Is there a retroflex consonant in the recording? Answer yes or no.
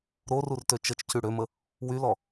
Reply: yes